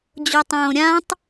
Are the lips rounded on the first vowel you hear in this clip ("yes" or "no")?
yes